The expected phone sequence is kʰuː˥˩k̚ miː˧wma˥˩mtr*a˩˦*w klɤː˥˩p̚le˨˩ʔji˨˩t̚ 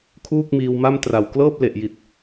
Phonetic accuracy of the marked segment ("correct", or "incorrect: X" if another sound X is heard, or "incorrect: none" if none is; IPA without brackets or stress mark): incorrect: a˨˩